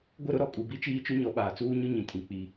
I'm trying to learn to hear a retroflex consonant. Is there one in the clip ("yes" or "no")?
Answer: no